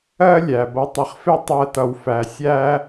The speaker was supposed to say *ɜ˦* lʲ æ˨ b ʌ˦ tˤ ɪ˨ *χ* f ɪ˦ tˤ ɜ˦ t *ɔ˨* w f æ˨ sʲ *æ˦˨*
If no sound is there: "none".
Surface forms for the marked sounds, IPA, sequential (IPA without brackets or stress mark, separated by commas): ɜ˦, χ, ʌ˨, æ˦